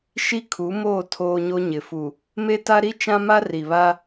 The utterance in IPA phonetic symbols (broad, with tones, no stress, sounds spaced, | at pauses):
ʃ i˦ kʰ u˨˦ m oː˦˨ tʰ oː˦ ɲ o˦ ɲ ɪ˨ f u˨ | m e˦ t a˦ ɾ i˦ t͡ʃ ã˦ m a˦ r i˨ β a˦